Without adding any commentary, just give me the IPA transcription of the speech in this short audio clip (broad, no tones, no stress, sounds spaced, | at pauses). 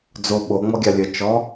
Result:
d͡z o ɓ o ŋ͡m ɔ ɡʲ a lʲ ə t͡ʃ ɔ